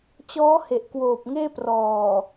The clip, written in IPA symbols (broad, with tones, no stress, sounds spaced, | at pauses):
t͡ɕ ɔː˦˥ h e˨˩ ʔ k w oː˨˩ p̚ ŋ eː˥˩ p r ɔː˨˩